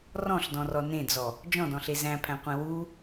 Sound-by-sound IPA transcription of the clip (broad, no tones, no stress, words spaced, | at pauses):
rɔ̃ɬdɔ̃rɔ nẽd͡zɔ | d͡ʒɔ̃dɔ̃ɬe zæ̃pʰæ̃qʷẽ wu